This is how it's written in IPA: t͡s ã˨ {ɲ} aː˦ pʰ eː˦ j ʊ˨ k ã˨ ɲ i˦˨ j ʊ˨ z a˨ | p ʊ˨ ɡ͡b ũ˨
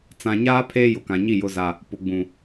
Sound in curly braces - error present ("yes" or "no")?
no